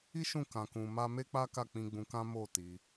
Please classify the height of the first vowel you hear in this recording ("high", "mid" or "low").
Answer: high